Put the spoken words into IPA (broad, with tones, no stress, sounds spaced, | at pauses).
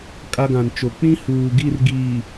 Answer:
kʼ a˦ ɡ ã˨ n t͡ʃ o˨ k͡p ĩ˦ h uː˨ ɡ i˦˨ r ɡ iː˨